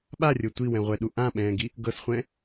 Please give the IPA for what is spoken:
ɓ a rʲ o tʷ i w ɛ̃ ʁʷ ɛ ɗ u ʔ ã ɓ ɛ̃ː ɡ i | ɡ ɤ s χʷ ɛ̃

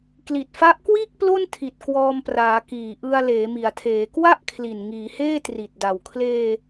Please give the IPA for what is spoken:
k l i˨˩ t̚ f a˦˥ ʔ k w iː˥˩ k̚ p l o˥˩ n tʰ i˨˩ t̚ k w ɔː˧ m p r aː˩˦ k iː˨˩ ʔ ɯ˧ a̯ l eː˩˦ m i˩˦ a̯ tʰ eː˩˦ k w a˥˩ ʔ kʰ l i˨˩ n ŋ iː˩˦ h eː˥˩ t r i˨˩ t̚ d a˨˩ w kʰ l eː˧

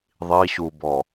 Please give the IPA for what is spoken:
ðˤ i ɕ u b ɔ

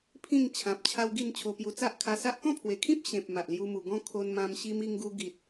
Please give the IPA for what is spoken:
pʰ ĩ˥˧ ŋ t͡ɕʰ ã˨ p̚ t͡ɕʰ a˦ w ɡ i˥˧ n t͡ɕʰ o˧ p j u˧ t͡s a˦ ʔ kʰ a˧ s a˦ ʔ k ɔ̃˥˧ pʰ w e˨˩ kʰ ĩ˦ p̚ ɕ ẽ˨ p̚ m a˨ ʔ l j u˧ m u˨˩ ɡ ɔ̃˦ kʰ o˧ n m ã˧ m ɕ i˧ m i˧ ŋ ɡ u˧ ɡ i˨ t̚

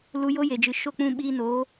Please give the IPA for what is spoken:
l u˧ j o˦ j e˨ d͡ʒ ɨ˨ ʃ o˦˨ k͡p ũ˧ ɓ iː˧ n oː˨˦

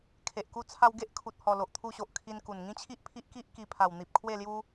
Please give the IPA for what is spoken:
kʰ e˨ ʔ k u˧ t͡sʰ a˧ w ɡ e˦ ʔ kʰ u˨ t̚ h ɔ˨˩ l o˨ ʔ t̪ʰ u˧ ɕ o˨ ʔ kʰ i˧ n k u˨˩ n ŋ ĩ˦ t͡ɕʰ i˦ ʔ pʰ i˦ ʔ k i˦ ʔ k i˧ pʰ a˨˩ w n̪ i˨ p̚ kʰ w e˥˧ l j u˦

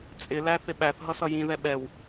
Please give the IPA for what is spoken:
t͡sʼ ɪ l æ θ ɪ ɓ æ θ ɦ ʌ s ʌ j ĩ ð ɛ ɓ ɛ w

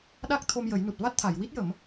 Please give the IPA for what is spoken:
ɗ a˦˥ k̚ t̪ʰ o˧ m j ə˨˩˦ j n u˨˩ t̚ v a˦˥ t̚ t̪ʰ a˨˩˨ j w i˦˥ t̚ j ə˨˩˦ m

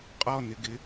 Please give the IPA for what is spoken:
qʼ ɔ n ɪ ɡ ɪ

